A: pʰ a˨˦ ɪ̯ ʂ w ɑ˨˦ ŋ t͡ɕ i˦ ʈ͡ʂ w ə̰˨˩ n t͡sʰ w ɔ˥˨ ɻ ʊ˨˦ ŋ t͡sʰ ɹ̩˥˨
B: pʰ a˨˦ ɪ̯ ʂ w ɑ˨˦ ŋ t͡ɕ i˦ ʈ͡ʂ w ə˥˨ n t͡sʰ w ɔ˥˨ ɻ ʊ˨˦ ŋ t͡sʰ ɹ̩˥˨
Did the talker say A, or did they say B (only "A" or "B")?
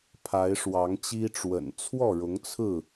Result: A